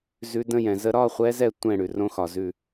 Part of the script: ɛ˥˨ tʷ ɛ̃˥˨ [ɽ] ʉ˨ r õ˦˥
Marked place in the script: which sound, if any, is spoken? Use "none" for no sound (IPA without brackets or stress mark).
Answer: ɽ